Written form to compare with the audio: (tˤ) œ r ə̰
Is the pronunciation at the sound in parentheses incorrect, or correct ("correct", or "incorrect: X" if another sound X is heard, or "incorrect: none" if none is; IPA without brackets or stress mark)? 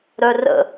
incorrect: ɾ